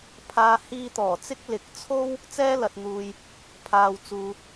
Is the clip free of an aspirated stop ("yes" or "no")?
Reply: no